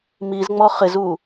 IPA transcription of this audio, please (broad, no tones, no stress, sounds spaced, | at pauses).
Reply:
m i z ŋ͡m ɔ χ ɪ z u